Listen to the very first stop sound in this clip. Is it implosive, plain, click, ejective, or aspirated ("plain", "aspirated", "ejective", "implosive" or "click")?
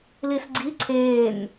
click